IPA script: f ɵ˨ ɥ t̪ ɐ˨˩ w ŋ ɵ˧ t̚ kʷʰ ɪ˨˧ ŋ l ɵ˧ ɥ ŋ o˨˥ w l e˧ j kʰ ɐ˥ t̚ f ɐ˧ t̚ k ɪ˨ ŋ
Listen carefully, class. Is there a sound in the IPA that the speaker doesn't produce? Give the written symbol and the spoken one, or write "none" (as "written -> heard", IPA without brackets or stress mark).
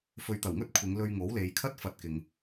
e˧ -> e˨